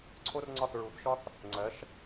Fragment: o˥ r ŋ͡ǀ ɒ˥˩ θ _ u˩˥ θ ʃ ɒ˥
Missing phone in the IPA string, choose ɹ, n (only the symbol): ɹ